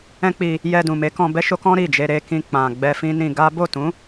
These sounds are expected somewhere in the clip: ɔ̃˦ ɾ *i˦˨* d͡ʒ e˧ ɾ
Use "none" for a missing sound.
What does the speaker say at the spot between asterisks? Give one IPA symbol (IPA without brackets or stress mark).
i˦˨